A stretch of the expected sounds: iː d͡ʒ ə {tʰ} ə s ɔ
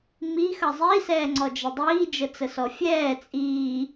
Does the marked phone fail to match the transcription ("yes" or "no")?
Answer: yes